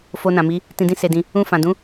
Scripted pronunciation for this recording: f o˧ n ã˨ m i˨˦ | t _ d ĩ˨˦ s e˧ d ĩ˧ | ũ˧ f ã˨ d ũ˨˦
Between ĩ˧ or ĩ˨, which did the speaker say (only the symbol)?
ĩ˨